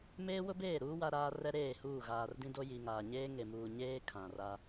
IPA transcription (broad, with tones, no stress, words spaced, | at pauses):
meː˦wʊ˦beː˦˨ɾuː˦ wa˦ɾaː˦ rɛ˦ɾeː˦˨huː˦˨ ɣaː˨r dĩ˦do˦ ji˨ŋaː˨ ɲeː˦ŋe˨muː˨ ɲeː˦ kʰã˨ra˦